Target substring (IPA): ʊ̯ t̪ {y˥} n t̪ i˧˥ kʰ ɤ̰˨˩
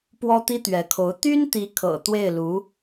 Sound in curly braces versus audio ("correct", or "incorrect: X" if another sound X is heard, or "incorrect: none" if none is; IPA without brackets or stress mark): correct